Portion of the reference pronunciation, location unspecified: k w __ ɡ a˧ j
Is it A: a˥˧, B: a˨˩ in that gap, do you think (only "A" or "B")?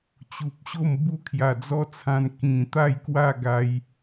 A